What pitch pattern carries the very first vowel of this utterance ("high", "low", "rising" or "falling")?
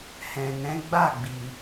low